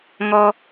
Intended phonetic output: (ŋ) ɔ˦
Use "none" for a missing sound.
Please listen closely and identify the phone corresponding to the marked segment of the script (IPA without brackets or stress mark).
ŋ